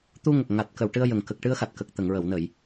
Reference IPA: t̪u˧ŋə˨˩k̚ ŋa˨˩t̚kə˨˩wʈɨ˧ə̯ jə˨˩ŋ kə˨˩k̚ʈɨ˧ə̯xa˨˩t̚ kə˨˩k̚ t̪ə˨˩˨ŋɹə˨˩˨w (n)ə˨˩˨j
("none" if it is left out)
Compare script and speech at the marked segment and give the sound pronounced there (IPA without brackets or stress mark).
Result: n